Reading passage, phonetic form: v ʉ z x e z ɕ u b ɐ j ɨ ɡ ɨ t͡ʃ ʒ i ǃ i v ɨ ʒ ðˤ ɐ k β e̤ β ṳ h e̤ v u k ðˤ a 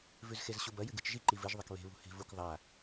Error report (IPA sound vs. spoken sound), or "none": none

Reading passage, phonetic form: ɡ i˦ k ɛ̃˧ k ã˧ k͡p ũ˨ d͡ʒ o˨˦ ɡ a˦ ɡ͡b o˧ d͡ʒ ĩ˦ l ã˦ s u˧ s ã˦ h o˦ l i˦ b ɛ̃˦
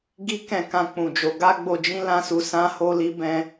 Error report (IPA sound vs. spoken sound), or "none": none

